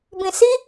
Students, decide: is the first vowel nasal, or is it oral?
nasal